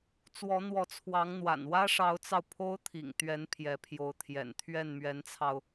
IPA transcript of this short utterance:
t͡s w ɔ˧˥ n̪ w ɔ˧˥ t͡sʰ w ɑ˧˥ ŋ n̪ w a̰˨˩ n w ä˥ ʂ ɑ˧˥ ʊ̯ t͡s ɑ˧ ʊ̯ pʰ o˥ ʊ̯ t̪ʰ ḭ˨˩ ŋ t̪ ɥ ɛ˧˥ n pʰ j ɛ˧˥ pʰ j o˧˥ ʊ̯ t̪ʰ j ɛ̰˨˩ n t̪ʰ ɥ ɛ˥˩ n m ɥ ɛ˧˥ n t͡sʰ ɑ˧ ʊ̯

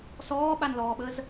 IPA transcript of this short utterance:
s ɔː ɓ a n l ɔː ɓ ə z

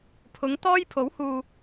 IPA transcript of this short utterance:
pʰ ʊ˨˥ ŋ t̪ ɔː˥ j pʰ o˨˥ w h uː˨

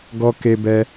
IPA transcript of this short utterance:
ɡ ɔ˦ k e˦ b ɛ˦

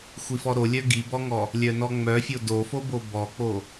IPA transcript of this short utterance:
xʷ i f ɔ ɾ o lʲ œ ɡ i b ɔ ŋ ɔ | lʲ œ n ɔ ŋ͡m œ fʲ o d o f o b o b ɔ k͡p o

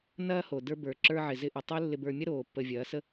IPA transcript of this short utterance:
n ɐː˦ h o˨ d ə˞˧ b ə˞˨ ǁ ə˞˧ ʕ ɪ˨ z ɪ˧ ʔ ɪ˨ tˤ o˦ lː ɪ˧ b ə˞˧ mʲ ɐ˦ ɾ oː˨ pː ə˨ vʲ ɐː˨˦ s ə˦

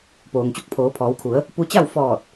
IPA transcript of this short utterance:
p oː˩ ŋ t͡ɕ u˧ k̚ pʰ oː˩˧ pʰ ɔː˩˧ w kʰ u˩˧ ə̯ | p u˧ t͡ɕ a˥˨ w f ɔː˧˩ t̚

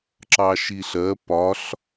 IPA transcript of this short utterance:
ǁ ɑ ʃ i ɬ ɜ p ɒ ɬ

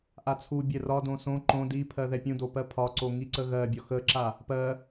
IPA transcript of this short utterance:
ʔ a t͡sʰ u bʲ ɛ r ɒ d õ s õ ǃ õ d i pʰ ɜ ð ɛ pʲ ũ d o p ɜ pʰ ɒ ǀ o ŋ i ǀ ə ɣ ɜ bʲ ɒ x ə ǁ a | p ɜ

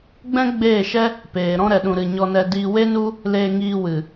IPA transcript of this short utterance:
ɡ͡b ɛ̃˦ ɡ͡b eː˦˨ ʃ ɛ˦ | p eː˨ ɾ ɔ̃˦ ɾ ɛ˧ ɗ ũ˧ ɾ ɨ˧ ɲ ɔ˧ n ɛ˧ d iː˧ w e˦ n u˦ | l eː˧ ŋ iː˧ w ɨ˨

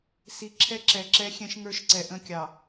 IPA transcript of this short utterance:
s i˨ ǁʰ ɛ˦ ǁ ɛ˨ ǁ ɛ˦ xʲ ɛ̃˦ ʃ ŋ ə˞˦ ʃ ǀ ɛ˨ ʔ ə̃˦ kʲ ɑ˨

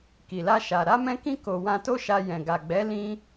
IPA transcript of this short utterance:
k i˨ l a˧ ʃ a˨ ɾ a˧ m ɛ̃˧ k ĩ˧ k o˨ w ã˧ t o˦ ʃ a˧ j ɛ̃˨ ɡ a˨ ɡ͡b ɛ˨˦ l ĩ˧

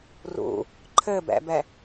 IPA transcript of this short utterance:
r ṵ | ǃʰ ɘ b ɛ̰ b ɛ

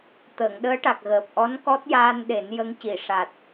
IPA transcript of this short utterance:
t̪ əː˨˩˨ ŋ ɗ əː˧˥ ʈ a˨˩ k̚ ɣ əː˨˩ p̚ ʔ ɔ˧˥ n k ɔ˦˥ t̚ j aː˧ n ɗ e˨˩˦ n j ə˧˥ ŋ c i˨˩˨ ʂ a˨˩ t̚

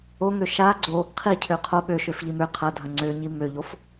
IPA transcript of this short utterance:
o ŋ ø ʃ a ɡ͡ǀ o | qʰ i cʰ ø qʰ o ɓ ø ʃ ø f ʎ i m ø qʰ ɐ dʱ ɐ ŋ͡ǀ ø ɲ i m ø ʎ o f

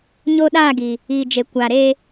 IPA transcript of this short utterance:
ɲ o˦ ɗ aː˦˨ ɡ iː˨ | iː˨ d͡ʒ e˨ kʷ aː˨ ɾ eː˦

